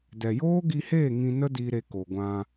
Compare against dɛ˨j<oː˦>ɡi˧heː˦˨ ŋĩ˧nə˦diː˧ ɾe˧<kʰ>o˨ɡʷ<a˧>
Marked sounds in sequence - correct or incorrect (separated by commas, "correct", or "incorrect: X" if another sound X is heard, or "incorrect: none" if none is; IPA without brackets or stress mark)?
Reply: correct, incorrect: k, incorrect: ã˧